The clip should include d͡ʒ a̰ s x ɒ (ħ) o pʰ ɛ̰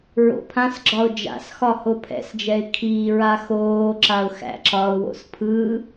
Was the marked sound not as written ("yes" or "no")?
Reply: yes